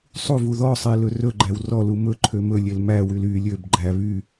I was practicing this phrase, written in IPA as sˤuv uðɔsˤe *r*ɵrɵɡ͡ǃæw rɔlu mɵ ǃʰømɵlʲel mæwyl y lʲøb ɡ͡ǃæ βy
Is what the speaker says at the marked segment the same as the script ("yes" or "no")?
no